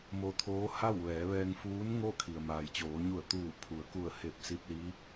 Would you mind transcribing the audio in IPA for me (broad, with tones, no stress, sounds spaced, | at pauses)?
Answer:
m o˧˥ t̪ʰ oː˧˥ h a˥˨ w ʋ ɛː˩˧ ʋ ɛː˧ ŋ f uː˧˥ n ŋ o˥˨ kʰ i˩ ə̯ m aː˩ j t͡ɕ oː˩˧ ɲ u˧˩ ə̯ t̪ uː˧˩ pʰ u˩˧ ə̯ k u˧˩ ə̯ h e˧˩ p̚ s i˧ p̚ l i˧˥